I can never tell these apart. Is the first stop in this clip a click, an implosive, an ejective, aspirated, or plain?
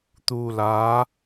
plain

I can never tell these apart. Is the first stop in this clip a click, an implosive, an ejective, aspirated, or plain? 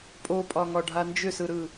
ejective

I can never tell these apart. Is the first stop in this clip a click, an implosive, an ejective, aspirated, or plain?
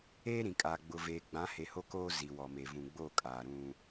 ejective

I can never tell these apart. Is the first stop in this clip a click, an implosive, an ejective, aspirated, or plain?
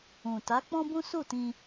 plain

